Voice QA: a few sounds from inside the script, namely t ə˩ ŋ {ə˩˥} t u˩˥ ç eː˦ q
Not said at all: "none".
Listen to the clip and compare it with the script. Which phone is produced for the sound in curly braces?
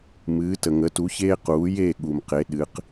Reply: ə˩˥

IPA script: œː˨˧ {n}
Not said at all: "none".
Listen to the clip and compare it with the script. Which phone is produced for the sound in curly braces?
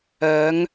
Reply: ŋ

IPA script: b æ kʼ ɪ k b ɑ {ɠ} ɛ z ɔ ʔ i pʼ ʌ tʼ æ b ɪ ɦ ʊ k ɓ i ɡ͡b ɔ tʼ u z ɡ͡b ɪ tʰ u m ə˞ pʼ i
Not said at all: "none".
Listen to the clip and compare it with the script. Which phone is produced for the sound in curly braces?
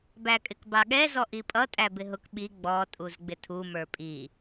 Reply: ɠ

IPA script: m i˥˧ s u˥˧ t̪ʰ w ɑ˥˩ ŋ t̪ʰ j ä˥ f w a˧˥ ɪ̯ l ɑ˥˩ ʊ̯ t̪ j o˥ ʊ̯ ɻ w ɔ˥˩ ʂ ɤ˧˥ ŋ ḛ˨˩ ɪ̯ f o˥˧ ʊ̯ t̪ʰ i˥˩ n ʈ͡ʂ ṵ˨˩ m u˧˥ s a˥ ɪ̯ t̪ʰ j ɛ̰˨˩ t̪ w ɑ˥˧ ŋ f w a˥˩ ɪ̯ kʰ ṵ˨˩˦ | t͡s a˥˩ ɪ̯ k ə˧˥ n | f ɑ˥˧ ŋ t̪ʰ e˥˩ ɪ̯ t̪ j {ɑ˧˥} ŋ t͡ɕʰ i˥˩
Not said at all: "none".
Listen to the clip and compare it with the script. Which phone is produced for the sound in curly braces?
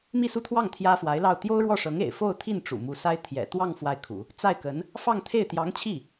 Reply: ɑ˧˥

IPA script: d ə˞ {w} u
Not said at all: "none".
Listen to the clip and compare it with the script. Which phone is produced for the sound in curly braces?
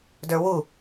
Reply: w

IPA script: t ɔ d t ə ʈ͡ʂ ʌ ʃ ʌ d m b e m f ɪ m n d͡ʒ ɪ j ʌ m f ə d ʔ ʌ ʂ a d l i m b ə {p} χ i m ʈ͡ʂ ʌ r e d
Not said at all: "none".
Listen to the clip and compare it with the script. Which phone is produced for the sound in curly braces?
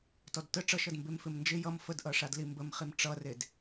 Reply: m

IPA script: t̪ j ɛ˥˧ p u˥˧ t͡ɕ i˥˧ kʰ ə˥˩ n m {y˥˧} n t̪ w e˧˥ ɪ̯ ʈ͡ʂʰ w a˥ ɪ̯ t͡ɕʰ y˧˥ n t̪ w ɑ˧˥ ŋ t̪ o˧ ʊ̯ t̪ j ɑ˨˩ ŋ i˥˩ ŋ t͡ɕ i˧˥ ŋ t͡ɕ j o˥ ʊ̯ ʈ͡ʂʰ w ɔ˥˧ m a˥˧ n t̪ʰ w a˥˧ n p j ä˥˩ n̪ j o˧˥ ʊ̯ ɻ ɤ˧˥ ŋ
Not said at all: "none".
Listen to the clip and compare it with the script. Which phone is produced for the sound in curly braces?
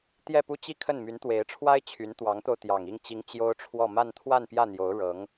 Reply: y˧˥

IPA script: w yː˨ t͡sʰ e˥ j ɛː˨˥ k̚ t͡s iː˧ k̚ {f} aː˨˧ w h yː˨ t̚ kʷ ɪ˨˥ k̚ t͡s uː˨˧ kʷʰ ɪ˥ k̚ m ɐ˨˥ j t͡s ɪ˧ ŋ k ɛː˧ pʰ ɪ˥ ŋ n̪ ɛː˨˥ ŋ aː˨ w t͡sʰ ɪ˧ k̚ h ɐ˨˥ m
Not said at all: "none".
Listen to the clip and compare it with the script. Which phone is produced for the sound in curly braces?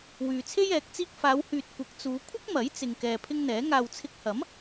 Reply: f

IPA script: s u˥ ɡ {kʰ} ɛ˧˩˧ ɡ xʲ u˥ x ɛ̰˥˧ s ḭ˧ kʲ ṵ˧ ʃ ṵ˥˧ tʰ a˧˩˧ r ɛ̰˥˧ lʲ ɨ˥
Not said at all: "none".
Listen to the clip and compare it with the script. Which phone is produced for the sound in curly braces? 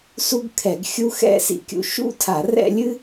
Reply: kʰ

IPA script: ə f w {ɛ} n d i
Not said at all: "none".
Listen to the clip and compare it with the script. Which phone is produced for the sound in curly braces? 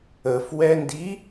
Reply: ɛ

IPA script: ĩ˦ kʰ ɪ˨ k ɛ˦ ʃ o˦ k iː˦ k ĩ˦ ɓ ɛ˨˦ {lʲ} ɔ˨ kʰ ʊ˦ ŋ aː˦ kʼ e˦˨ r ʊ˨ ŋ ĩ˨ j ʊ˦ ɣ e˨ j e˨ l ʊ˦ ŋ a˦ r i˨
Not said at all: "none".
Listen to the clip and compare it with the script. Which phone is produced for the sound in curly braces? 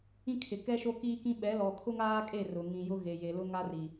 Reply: l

